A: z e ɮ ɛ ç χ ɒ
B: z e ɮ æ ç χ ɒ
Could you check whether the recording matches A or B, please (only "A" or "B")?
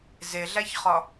B